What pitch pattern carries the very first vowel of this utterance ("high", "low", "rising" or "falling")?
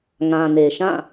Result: low